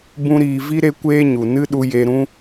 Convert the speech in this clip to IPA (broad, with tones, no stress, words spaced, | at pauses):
bũ˦ɾiː˧ vi˦ ɾe˦kʷeː˦ɲu˨ nɨ˦ɗu˧ je˧ɾũ˦